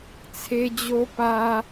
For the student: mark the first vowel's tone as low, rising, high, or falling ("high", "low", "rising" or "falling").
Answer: high